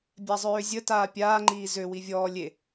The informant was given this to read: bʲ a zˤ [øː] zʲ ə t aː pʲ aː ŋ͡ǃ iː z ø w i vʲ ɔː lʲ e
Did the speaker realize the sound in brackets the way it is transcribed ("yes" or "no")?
yes